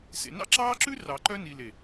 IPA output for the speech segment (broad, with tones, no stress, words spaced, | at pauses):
sḛ˨nɑ̰˦ǁɑː˦ǁʉ˦ rɑ˨ǃœ˦ ni˨ le˨